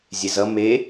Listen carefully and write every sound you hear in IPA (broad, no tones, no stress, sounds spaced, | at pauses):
zʲ e z ʌ m e